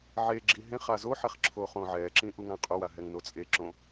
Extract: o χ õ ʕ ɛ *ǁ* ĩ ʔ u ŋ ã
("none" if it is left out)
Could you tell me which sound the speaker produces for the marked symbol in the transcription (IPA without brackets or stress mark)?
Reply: ǁ